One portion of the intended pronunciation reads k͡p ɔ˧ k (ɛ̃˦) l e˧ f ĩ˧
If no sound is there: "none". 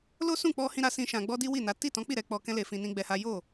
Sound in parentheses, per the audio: ɛ̃˦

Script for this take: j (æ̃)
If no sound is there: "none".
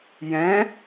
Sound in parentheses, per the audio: ɛ̃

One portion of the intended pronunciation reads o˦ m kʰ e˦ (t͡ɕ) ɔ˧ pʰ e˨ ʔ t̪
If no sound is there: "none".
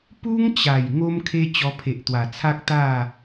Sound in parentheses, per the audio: t͡ɕ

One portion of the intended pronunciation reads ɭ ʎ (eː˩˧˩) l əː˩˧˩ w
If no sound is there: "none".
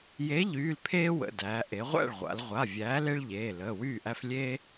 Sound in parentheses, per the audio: eː˩˧˩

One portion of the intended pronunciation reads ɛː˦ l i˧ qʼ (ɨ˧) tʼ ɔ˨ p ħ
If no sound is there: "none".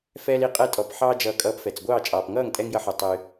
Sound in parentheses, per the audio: ɛ˧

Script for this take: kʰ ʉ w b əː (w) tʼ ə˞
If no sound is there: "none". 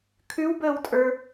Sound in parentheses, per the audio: w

